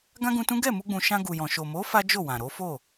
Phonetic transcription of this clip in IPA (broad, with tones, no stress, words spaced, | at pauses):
ɡã˦ɡũ˧tũ˦ ɡɛ˦˨mu˧ɡ͡bũ˨ ʃã˧ɡu˨jɔ̃˨ ʃo˨mo˨˦ fa˦d͡ʒo˦˨wã˨ ɾo˨˦ fo˦˨